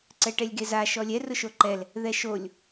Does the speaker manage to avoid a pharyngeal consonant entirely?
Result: yes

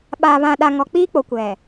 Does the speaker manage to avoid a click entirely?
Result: yes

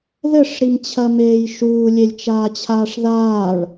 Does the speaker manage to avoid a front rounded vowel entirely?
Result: yes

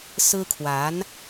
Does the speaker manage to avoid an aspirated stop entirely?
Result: no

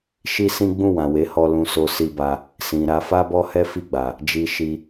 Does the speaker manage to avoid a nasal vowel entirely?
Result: no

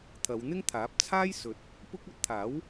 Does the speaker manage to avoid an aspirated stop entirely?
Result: no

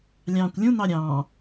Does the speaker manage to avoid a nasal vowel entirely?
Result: no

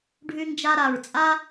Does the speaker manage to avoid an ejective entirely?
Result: no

